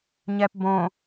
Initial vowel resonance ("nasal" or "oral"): oral